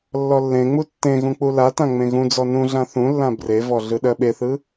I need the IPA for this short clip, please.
lː ɔ lː ẽ ŋ͡m u tː ẽ ɣ ũ k͡p u l a t ã ŋ͡m ẽ ɣ ũ d͡z ɔ n ũ ɮ ã θ ũ lː ã b r e v ɔ ɮ ɯ ɗ ɜ ɓ e θ ɯ

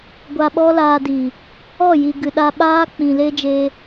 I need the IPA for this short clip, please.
ɡʷ a˧ ɓ ɔ˦ l aː˧ d iː˨ | ɔ˦˨ j i˨ ɡ ɨ˨ ɗ a˧ ɓ aː˦ k͡p ĩ˨ l e˦ d͡ʒ eː˧

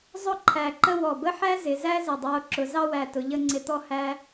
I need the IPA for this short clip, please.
zˤ ʊ˥˧ ǃʰ æ˧˩ ǃ ə˥˧ w ɔ˧˩ b ə˥ ħ æ˥ z ɪ˩˧ z æ˥ z ɪ˧˩ dˤ ə˞˧ o̯ ǁ ʊ˩˧ z ɑ˥˧ w æ˧˩ t ʊ˩˧ ʎ ə˥˧ ŋ͡ǀ ɪ˧ t̪ ɔ˥ h æ˥

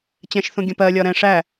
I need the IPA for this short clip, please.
t͡ɕ ɛ̃ ʃ θ ũ ɡʲ ə̃ p ɜ lʲ ɒ ɾ ɛ̃ ʂ æ

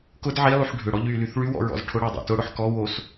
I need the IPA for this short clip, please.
k ʊ d ʕ i lˠ y ħ ɖʱ ʏ ɽ ɔ ʎ y l y θ ɭ y w ɔ̰ ɹ ɔ̰ z ʈʰ ʊ ɽ a dˤ a̰ t ʊ ɽ ʊ ħ k ɔ w o s

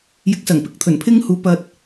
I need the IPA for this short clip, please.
j ɪ˨˥ k̚ s ɐ˨˩ ŋ p ɪ˧ k̚ t̪ʰ ɵ˨˩ n pʰ ɪ˥ ŋ h uː˨˥ p ɐ˧ t̚

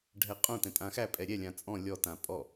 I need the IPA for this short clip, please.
ɖʱ ɛ qʼ õ t ɛ̃ tʼ ã x æ pʼ ɛ ɾʲ ɛ lʲ ã t͡sʼ ɔ̃ lʲ ɔ t ã pʼ ɔ

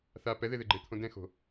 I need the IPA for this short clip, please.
θ a p ɛ ð e ð e ɡ͡ǃ e t̪ʰ õ d ɛ̃ x o̤

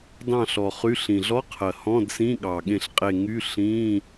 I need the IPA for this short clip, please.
d ɑ̃˥˨ ɬ ɔ˨˩ χ y˧˥˧ ɬ ĩ˨˩ ɮ ɔ˧˥˧ qʰ ɜ˨˩ h ɔ̃˧˥˧ d s ĩ˧˥˧ ɠ ɑ˨˩ ɠ ẽ˨˩ ɬ qʼ e˨˩ ŋ y˧˥˧ ɬ ĩ˧˥˧

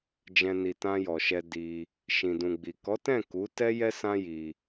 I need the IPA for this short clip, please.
d͡ʒ ɛ̃˨ n i˨ t ã˧ j ɔ˨ ʃ ɛ˧ d i˧ | ʃ ĩ˨ d ũ˨ ɡ͡b i˨ k ɔ˨˦ t ɛ̃˦˨ k u˨˦ t ɛ˦ j ɛ˦ s ã˦ j i˧

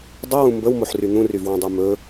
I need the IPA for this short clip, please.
dˤ ɵ w ũ m b ə w m o ħ r y n̪ ũ r y v w ũ dˤ u m ɵ

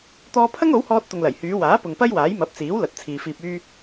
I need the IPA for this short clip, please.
t̪ ɔː˧ pʰ ɐ˥ ŋ o˨˥ w h ɔː˧ t̚ t̪ ʊ˨ ŋ l ɐ˨˩ j h yː˨˧ w aː˨˥ p ʊ˨ ŋ p ɐ˥ j w aː˨˥ j m ɐ˨˥ p̚ t͡s iː˨˥ w l ɐ˨˥ t̚ t͡sʰ iː˨ f iː˧ p̚ yː˥

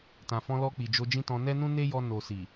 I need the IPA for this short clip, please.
t ã˨ f ɔ̃˧ l ɔ˧ k͡p i˨ d͡ʒ o˧ d͡ʒ ĩ˦ t ɔ̃˧ n ɛ˦ n ũ˦ n e˦ j ɔ˧ n o˨ s i˨

